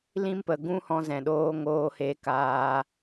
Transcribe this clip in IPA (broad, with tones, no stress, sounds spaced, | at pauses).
l ĩ˦ m p ə˨ ɡ ũ˦ h ɔ̃˧ z ɛ̃˨ ɗ oː˧ ŋ oː˦ h e˧ k aː˧